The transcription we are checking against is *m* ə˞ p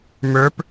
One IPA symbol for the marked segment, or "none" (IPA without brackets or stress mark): m